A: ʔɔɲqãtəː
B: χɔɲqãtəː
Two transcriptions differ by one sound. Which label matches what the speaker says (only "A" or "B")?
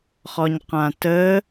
B